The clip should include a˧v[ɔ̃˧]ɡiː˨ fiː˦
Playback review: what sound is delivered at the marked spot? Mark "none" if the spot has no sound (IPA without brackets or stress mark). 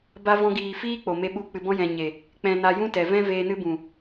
ɔ̃˧